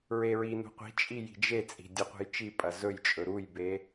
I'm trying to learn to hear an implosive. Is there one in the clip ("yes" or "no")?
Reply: no